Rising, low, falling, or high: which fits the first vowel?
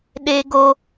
high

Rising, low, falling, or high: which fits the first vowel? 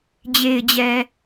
low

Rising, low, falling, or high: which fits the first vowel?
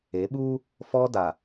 rising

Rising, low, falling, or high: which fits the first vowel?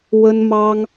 high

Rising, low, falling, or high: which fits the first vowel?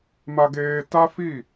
high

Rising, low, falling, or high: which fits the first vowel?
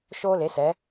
high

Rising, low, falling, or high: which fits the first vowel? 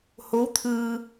rising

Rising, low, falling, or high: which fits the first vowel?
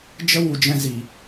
high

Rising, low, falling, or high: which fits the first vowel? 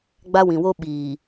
high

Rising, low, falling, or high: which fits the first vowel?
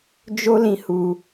high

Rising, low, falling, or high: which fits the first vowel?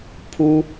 high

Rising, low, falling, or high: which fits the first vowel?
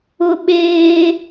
high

